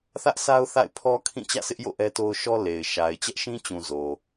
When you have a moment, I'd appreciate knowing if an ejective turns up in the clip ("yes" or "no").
no